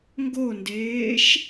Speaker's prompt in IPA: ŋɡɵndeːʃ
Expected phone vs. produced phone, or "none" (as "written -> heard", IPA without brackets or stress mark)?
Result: ɵ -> o